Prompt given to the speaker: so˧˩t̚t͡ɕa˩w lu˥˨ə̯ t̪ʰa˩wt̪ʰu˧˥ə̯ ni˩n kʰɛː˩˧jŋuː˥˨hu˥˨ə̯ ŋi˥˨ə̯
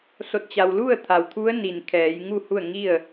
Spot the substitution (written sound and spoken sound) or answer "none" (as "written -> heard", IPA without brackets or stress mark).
uː˥˨ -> u˥˨